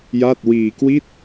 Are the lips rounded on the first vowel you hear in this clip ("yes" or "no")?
no